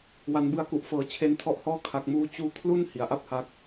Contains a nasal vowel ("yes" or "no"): no